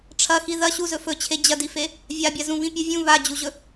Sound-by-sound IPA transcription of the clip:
ʈ͡ʂʰ ɐ x i ð ɐ ɕ u z ɵ f ɵ t͡ɕʰ e d͡ʑ ɐ d i f e | vʲ a bʲ a z ũ β ĩ pʲ ɨ vʲ ũ β a d͡ʑ u ʑ ɵ

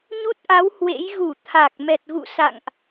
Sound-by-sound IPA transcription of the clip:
ɲ u˦˥ t̚ ʔ a˨˦ w h w ḛ˧˥ j ɣ u˧˩ t̪ʰ a˨˩ k̚ m ɛ˨˩ t̚ ɣ ṵ˧˨ s a̰˧˨ ŋ ʔ

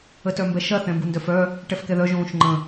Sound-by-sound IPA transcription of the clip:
ə t œ m b ɛ ʃ ɐ θ ɛ̃ m b u n d œ f œ | ʈ ɛ f k ɛ ð œ ʒ õː ʃ ŋ͡ǃ ə̃

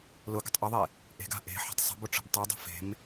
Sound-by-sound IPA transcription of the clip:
l ʊ ɡ ə̤ tˤ ʔ ʊ ðˤ e | ʔ e̤ ɡ a̤ ʔ e̤ ħ ə̤ tˤ sˤ ə̤ b ʊ ʈ͡ʂ ə̤ b tˤ ɯ dˤ ə̤ f e̤ m

